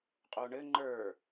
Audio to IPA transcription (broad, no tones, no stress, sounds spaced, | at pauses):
qʼ o ɳ ɘ ŋ͡ǃ ə˞